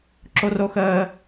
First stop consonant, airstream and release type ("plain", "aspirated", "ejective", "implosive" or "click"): click